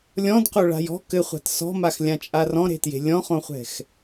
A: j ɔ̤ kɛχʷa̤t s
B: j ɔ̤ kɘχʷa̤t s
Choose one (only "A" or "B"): B